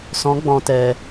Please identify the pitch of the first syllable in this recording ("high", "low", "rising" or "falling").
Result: rising